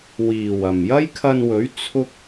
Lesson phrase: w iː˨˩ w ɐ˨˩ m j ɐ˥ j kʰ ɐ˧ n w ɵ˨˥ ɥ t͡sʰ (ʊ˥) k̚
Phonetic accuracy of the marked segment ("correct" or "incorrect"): correct